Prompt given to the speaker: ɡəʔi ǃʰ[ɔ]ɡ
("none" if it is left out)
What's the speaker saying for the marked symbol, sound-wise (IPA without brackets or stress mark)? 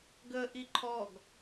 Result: ɔ